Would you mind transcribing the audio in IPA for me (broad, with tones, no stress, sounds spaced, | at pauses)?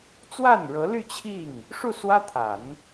t͡s w a˥˩ n ɻ ɤ˧˥ l y˥˧ t͡ɕʰ i˥˩ ŋ | ʂ u˥˩ s w ä˥ t̪ʰ a˨˩˦ n